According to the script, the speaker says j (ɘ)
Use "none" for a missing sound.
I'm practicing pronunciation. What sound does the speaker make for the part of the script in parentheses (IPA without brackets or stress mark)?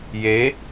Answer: e